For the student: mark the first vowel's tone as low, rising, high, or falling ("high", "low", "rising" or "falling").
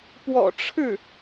low